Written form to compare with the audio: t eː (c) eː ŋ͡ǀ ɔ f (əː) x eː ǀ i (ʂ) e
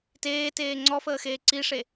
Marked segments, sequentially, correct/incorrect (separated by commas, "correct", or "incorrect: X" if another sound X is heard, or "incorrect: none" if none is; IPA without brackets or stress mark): incorrect: t, correct, correct